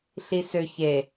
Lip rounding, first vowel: unrounded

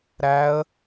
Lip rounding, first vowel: unrounded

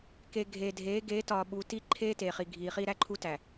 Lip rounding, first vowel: unrounded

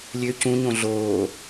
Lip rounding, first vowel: rounded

